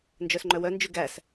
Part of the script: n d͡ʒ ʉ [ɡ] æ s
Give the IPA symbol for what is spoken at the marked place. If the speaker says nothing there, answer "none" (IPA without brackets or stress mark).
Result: ɡ